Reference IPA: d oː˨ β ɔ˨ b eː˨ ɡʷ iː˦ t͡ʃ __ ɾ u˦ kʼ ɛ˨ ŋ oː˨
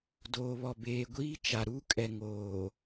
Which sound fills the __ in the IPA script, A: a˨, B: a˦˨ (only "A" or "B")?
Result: A